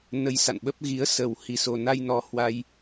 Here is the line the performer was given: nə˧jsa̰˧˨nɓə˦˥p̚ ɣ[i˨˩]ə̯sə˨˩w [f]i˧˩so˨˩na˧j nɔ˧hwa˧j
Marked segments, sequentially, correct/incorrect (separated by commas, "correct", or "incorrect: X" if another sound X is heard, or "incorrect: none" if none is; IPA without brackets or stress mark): incorrect: i˨˦, incorrect: h